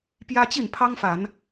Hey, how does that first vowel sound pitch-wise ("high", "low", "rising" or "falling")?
high